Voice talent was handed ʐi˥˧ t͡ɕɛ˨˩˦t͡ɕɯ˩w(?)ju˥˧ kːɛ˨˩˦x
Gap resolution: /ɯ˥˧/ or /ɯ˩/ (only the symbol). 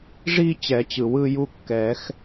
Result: ɯ˥˧